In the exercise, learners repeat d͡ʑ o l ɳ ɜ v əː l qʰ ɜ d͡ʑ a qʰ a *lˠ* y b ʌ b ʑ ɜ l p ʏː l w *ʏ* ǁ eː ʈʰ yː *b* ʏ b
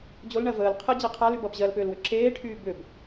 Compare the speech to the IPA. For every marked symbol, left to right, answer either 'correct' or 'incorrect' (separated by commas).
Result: incorrect, correct, correct